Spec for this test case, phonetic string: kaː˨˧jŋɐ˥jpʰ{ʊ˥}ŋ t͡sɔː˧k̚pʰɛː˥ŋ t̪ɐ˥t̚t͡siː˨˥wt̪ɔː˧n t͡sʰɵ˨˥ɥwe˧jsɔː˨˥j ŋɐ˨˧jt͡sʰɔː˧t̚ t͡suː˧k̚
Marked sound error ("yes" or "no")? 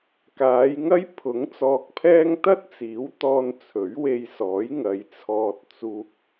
yes